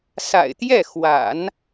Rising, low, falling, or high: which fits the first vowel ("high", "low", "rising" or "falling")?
low